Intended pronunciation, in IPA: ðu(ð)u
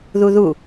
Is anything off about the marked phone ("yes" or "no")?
no